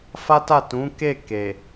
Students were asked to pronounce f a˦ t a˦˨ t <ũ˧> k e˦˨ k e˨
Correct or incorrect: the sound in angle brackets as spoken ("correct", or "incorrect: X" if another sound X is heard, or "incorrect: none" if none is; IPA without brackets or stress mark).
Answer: incorrect: ũ˨˦